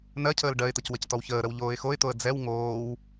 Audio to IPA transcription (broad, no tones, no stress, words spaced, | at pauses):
nɜcʰəːl ɖɜɪ̯t̪əc wəctɔwçəːɾəw ʎoːɪ̯xoɪ̯t̪oə̯ d͡zɛw ŋoːw